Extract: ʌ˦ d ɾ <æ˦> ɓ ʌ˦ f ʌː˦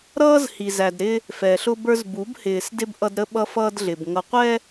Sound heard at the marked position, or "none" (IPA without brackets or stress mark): ə˦